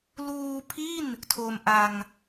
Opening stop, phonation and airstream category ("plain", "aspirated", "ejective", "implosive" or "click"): aspirated